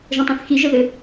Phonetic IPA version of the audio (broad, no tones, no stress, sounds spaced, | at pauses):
ʒ ə̃ tˤ œ̃ θ x i ʒ ə ð ɘ